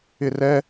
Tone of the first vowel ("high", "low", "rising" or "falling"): high